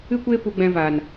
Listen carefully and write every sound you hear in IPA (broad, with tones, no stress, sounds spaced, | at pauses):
ɨ˦ kʷ eː˦ p u˧ ɡ͡b ɛ̃˧ v a˨ n